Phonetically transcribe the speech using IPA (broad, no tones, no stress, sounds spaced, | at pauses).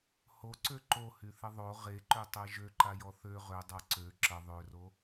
h o ǀ ø ǃ o h y θ ə ðˤ o ʁ e ǃ ø tˤ ɛ ʒ ø ǃ a j ɔ θ ø ʁ ø dˤ a ǀ ø ǁ ə ðˤ ø r o